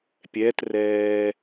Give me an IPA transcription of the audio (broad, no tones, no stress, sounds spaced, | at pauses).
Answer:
pʲ ɛ t r ɛː